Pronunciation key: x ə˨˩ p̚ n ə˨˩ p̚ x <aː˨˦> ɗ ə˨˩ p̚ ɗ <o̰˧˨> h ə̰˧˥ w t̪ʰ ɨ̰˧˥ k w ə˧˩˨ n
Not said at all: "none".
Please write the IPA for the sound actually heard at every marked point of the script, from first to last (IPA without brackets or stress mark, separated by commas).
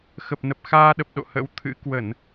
aː˧, o̰˧˨